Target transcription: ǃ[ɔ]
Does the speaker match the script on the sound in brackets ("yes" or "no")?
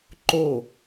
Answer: no